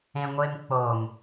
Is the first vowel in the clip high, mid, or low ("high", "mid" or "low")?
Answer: mid